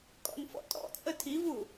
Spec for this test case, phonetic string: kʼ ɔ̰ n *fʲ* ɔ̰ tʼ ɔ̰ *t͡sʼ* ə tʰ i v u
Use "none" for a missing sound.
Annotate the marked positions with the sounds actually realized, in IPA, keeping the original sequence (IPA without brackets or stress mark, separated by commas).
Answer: f, t͡sʼ